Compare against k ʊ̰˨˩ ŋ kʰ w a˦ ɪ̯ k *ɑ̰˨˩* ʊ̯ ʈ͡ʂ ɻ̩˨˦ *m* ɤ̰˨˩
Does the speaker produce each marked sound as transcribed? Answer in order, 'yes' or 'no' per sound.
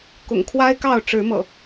no, yes

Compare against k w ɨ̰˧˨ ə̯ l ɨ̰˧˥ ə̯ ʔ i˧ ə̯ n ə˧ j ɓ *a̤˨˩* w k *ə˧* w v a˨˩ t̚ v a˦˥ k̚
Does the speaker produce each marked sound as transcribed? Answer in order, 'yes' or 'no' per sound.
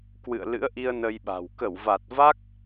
yes, no

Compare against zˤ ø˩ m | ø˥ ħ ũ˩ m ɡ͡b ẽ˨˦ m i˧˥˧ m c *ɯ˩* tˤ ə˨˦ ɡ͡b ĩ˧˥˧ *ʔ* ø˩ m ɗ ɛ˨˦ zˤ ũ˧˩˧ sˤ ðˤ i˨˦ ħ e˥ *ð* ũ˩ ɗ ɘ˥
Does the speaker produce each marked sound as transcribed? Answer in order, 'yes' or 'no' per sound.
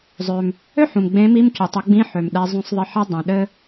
no, no, no

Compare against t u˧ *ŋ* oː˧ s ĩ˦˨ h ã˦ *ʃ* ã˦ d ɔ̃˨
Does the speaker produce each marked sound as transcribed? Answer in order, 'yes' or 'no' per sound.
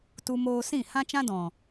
no, no

